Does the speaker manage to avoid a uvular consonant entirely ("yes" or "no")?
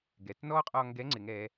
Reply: no